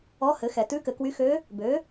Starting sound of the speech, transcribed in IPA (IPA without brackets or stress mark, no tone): ɔ